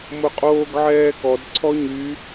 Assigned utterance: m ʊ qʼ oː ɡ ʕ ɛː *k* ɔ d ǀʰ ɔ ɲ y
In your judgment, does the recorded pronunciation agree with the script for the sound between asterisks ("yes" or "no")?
yes